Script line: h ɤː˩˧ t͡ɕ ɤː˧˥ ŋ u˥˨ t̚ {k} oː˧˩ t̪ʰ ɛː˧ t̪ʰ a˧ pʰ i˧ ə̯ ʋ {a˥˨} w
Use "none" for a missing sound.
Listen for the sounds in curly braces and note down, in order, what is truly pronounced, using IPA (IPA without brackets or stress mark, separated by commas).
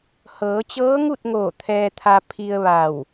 ŋ, a˧˩